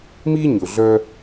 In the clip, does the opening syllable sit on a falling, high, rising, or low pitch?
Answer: high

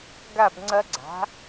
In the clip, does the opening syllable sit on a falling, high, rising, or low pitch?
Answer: falling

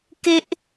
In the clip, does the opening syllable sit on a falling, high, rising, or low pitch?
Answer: high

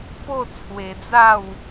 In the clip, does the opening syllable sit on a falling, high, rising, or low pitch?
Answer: falling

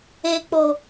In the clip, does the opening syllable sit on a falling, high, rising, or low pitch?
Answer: low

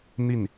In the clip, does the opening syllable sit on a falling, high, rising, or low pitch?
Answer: falling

